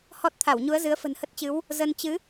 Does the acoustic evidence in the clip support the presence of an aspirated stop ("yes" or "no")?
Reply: yes